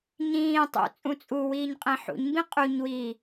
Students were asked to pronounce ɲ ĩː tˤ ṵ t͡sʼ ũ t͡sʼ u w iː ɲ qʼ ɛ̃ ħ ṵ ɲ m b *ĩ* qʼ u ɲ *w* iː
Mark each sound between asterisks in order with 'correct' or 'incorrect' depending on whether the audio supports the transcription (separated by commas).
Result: correct, correct